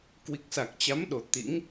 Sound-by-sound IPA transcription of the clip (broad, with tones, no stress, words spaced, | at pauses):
kwi˨˩k̚sa˨˩k̚t͡ɕa˨˦mɗo˨˩ t̪ḭ˧˥ŋ